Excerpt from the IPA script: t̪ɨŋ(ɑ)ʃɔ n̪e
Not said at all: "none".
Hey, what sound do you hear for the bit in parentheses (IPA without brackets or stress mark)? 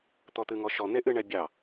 ɔ